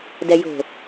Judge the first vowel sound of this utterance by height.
mid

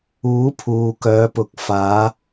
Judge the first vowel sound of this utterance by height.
high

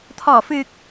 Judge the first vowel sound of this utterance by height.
mid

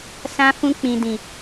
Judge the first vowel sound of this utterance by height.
low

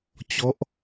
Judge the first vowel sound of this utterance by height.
mid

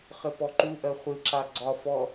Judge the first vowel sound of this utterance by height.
mid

